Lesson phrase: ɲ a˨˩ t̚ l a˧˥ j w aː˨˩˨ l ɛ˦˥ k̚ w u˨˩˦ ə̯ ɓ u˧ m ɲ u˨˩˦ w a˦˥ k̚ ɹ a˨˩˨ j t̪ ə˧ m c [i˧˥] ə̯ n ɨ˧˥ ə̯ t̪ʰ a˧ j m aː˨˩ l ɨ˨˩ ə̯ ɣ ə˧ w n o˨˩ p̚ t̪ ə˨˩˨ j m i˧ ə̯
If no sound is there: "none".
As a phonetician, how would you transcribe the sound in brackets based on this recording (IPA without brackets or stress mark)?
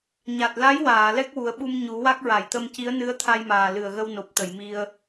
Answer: i˧˥